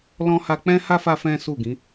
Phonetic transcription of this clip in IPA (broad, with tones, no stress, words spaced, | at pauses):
lɔ̃˧ha˧ k͡pɛ̃˦ha˦ fa˦fɛ̃˦su˦˨ɡĩ˨˦